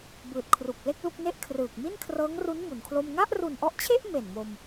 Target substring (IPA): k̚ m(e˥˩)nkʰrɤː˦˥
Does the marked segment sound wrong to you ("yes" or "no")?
yes